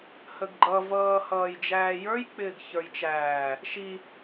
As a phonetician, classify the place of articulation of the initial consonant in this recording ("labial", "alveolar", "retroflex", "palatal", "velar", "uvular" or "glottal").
glottal